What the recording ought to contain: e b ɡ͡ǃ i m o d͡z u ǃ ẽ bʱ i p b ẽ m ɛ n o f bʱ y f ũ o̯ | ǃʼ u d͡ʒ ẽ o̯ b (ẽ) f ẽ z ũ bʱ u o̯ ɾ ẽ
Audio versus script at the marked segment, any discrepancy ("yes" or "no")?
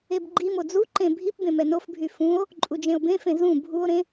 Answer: no